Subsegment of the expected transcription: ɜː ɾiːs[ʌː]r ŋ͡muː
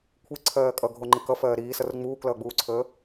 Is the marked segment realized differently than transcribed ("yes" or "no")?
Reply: yes